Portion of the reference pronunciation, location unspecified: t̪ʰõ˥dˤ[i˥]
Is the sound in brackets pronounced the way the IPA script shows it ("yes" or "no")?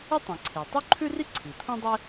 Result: no